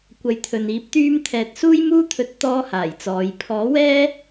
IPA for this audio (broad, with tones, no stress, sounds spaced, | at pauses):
kʷ ɐ˨˥ j t̪ʰ ɵ˨ n iː˨˥ p̚ t̪ yː˧ m t̪ʰ ɛː˨ t̚ s uː˥ j m uː˥ t̪ʰ ɵ˧ t̚ t̪ ɔː˥ h aː˨˩ j t͡s ɔː˨˧ j pʰ ɔː˨˥ w ɛː˥